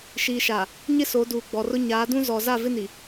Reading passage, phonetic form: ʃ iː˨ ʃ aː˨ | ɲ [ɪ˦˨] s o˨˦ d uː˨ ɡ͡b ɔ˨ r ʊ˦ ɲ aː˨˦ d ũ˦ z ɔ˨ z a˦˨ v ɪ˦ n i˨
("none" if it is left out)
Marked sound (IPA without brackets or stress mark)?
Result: ɪ˦